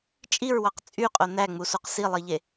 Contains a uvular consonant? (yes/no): yes